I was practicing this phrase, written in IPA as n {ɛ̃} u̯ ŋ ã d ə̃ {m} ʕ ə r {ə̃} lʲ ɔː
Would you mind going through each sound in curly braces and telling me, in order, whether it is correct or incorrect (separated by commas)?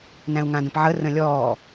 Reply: incorrect, incorrect, correct